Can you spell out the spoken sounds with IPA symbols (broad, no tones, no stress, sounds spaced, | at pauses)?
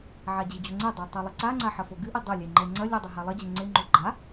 ʕ a d͡ʑ ɨ d͡ʑ o ŋ͡ǀ e dˤ o tˤ ɛ lˠ i ǀ a ŋ͡ǀ a ħ ɐ f o ɡ ɨ ʔ i dˤ ɐ lʲ ɛ ŋ͡ǃ ɛ ŋ͡ǀ ɐ lʲ u dˤ o ɦ a lˠ ɐ d͡ʑ ɘ ŋ͡ǀ e ŋ͡ǃ o ɡ͡ǃ a